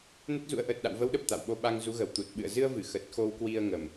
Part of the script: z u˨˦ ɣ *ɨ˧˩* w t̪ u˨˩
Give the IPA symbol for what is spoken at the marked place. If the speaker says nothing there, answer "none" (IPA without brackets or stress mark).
ə˧˩